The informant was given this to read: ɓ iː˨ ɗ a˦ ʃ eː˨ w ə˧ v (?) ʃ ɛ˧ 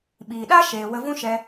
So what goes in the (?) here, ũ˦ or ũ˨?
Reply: ũ˦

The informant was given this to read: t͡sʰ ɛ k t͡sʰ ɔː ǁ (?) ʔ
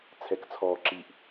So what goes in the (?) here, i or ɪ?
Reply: i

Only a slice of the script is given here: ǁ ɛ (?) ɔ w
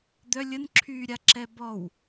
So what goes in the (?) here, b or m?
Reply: b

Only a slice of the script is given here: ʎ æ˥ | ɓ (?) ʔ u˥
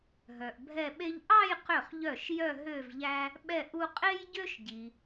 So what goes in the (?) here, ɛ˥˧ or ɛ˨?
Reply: ɛ˥˧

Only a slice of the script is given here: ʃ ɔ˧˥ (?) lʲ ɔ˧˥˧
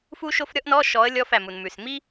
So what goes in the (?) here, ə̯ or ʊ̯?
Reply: ə̯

